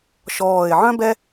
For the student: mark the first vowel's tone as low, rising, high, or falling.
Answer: low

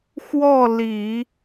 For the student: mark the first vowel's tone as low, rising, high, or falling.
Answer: falling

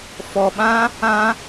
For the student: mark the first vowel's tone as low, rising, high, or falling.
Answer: low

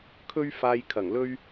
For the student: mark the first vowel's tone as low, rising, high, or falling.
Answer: high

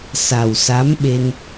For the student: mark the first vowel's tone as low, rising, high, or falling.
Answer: low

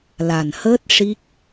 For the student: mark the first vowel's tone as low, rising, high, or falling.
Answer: low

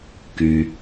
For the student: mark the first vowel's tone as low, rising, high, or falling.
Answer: low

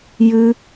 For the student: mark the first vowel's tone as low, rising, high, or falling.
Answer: high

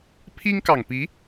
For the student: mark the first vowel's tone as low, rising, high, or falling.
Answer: high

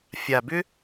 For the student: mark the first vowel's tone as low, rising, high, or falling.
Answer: low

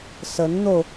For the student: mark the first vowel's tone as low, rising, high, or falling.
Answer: rising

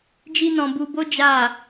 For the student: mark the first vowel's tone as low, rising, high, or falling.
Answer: high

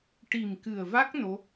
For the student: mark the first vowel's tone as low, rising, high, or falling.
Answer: low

